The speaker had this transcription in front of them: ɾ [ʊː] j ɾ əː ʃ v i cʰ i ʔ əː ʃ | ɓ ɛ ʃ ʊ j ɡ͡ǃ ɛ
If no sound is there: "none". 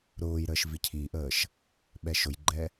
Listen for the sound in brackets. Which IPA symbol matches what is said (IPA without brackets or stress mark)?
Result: ʊː